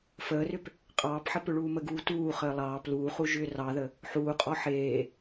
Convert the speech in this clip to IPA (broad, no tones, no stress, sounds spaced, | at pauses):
f əː r ʏ p | qʼ ɑː p ħ ə p ʏ ɭ uː m ə ɡ uː t uː χ əː lˠ ɑː p l uː χ u ʒ ʏː r ɑ ð ə | ħ uː qʼ ɔ ħ eː